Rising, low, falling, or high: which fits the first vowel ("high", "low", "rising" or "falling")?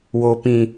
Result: low